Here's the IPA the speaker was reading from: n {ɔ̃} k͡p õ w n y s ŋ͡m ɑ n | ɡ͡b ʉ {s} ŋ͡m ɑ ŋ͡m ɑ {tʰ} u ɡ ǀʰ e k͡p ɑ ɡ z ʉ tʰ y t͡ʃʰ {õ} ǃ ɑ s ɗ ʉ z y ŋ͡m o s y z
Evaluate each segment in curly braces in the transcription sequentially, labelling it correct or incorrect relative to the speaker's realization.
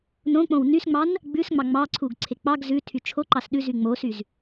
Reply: incorrect: õ, correct, incorrect: ǀʰ, incorrect: o

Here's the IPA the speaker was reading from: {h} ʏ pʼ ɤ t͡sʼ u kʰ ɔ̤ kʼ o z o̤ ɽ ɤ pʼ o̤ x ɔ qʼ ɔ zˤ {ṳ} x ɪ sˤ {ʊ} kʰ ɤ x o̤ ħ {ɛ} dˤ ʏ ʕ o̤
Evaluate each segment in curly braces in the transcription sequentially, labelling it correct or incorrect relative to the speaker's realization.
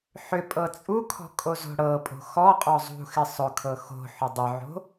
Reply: incorrect: ħ, correct, correct, incorrect: ʏ

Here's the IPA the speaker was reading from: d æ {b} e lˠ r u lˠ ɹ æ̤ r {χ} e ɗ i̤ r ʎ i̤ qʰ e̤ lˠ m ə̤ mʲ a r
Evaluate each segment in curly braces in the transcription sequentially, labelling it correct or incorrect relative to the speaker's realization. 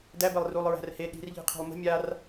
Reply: correct, incorrect: h

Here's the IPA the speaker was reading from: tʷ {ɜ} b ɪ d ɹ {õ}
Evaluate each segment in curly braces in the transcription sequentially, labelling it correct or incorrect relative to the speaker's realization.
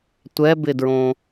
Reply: incorrect: ɛ, correct

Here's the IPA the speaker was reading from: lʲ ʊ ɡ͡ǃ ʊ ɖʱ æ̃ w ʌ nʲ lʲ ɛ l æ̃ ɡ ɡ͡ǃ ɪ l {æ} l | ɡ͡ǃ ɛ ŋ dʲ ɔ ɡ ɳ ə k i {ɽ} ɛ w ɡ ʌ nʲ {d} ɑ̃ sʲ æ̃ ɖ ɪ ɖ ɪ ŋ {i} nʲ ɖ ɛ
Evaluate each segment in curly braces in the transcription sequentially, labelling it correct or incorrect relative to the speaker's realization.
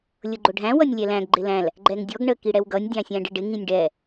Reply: incorrect: æ̃, correct, incorrect: dʲ, incorrect: ĩ

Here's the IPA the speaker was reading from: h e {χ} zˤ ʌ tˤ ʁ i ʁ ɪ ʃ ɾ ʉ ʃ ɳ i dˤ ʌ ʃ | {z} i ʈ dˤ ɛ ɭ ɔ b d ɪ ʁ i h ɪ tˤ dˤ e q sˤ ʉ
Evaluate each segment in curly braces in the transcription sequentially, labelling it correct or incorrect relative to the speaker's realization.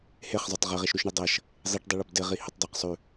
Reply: correct, incorrect: zˤ

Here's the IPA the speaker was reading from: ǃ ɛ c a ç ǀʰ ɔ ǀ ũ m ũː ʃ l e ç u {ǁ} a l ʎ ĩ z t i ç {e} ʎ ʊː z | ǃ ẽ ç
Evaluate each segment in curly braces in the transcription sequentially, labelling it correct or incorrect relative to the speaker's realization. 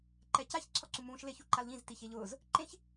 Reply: incorrect: ǃ, correct

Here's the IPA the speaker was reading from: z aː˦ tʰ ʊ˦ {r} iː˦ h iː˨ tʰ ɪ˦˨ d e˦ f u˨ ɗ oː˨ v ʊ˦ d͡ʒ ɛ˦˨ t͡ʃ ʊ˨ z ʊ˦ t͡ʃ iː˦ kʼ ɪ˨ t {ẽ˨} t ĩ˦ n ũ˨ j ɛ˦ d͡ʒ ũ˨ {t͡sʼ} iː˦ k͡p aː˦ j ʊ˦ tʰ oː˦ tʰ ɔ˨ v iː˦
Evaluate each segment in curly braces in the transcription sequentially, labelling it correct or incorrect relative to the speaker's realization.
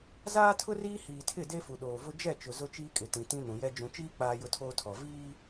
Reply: correct, incorrect: ĩ˨, incorrect: t͡ʃ

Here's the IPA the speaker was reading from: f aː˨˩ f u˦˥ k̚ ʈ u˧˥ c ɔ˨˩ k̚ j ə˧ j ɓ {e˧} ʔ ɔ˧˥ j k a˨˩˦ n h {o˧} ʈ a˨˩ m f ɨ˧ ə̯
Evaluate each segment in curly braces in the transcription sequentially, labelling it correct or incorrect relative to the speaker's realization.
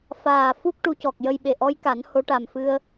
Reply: incorrect: e˨˩, incorrect: o˧˥

